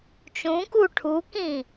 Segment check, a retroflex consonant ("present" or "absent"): present